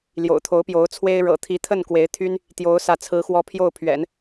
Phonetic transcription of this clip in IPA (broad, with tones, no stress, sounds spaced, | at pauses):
l j o̰˨˩ ʊ̯ t̪ʰ o˧˥ ʊ̯ p j o˧˥ ʊ̯ t͡sʰ w e˥ ɪ̯ ɻ ɤ̰˨˩ t̪ʰ i˧˥ t̪ʰ ə˥˩ n k w e˧˥ ɪ̯ t̪ʰ y˥ n | t̪ j o˧˥ ʊ̯ s ä˥˩ t͡sʰ ɹ̩˥ x w ɔ˥ pʰ j o˥˩ ʊ̯ pʰ ɥ ɛ̰˨˩˦ n